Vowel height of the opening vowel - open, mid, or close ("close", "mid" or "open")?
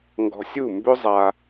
mid